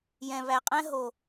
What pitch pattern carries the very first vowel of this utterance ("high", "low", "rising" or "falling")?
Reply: low